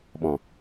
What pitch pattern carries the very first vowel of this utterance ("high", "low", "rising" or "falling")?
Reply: low